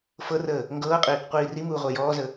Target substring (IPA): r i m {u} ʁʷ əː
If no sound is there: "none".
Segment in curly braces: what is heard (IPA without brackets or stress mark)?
uː